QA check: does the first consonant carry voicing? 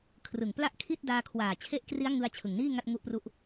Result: no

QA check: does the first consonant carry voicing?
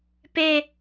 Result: no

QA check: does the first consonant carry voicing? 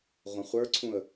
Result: yes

